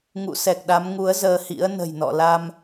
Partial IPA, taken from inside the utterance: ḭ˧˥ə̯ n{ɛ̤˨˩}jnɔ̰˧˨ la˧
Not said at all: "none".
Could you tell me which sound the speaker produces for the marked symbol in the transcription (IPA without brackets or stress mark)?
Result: ə̤˨˩